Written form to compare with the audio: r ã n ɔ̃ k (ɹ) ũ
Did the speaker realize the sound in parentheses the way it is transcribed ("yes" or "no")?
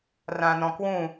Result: no